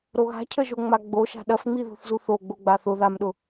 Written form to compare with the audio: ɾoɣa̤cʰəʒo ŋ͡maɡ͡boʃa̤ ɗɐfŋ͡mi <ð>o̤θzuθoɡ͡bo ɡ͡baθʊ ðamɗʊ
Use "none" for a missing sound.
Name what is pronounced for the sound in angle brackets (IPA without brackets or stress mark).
ð